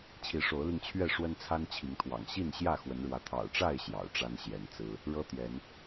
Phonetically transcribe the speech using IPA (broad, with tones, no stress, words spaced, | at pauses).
t͡ɕʰi˨˦ʂo˨˦ʊ̯li˧ŋt͡ɕʰɥɛ˥˨ ʂwə˦nt͡sʰa˦nt͡ɕʰi˨˦ŋt̪ʰwɑ̰˨˩ŋ ɕi˥˨nɕjä˥˨ xwə˨˦nɻwä˨˦ t̪ʰɑ̰˨˩ʊ̯ʈ͡ʂa˥˨ɪ̯ ɕjɑ̰˨˩ʊ̯ʈ͡ʂa˦nɕjɛ˨˦nt͡sɹ̩˦ | ɻɤ˦t̪jɛ˨˦n